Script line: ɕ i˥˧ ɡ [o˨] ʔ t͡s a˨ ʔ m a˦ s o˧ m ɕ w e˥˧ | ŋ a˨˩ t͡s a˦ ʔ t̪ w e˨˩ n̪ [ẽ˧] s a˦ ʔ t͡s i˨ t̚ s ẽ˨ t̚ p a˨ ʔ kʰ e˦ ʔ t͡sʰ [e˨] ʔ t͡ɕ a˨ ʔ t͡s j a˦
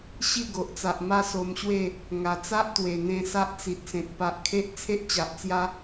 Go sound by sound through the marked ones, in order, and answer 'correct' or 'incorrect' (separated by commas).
correct, correct, incorrect